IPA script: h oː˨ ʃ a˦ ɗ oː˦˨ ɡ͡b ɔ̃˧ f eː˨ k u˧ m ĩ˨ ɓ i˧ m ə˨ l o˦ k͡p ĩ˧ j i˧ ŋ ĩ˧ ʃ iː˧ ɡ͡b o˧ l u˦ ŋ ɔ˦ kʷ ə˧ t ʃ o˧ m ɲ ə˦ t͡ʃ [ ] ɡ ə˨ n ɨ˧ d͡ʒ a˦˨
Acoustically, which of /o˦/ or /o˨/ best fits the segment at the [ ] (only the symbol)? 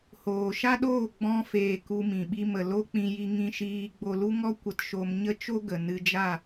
o˦